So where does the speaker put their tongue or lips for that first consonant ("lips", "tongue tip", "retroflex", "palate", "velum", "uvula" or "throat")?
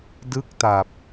tongue tip